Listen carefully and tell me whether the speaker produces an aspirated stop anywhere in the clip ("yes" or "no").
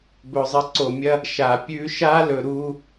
no